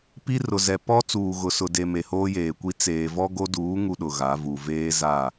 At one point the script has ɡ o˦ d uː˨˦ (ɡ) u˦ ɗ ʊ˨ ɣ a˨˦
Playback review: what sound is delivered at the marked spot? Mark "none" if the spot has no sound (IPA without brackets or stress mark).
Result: ŋ